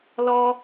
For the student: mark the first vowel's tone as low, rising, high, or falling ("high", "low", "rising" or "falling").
high